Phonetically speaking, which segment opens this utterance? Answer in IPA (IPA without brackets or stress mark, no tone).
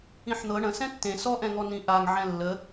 ĩ